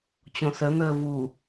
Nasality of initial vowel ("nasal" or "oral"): nasal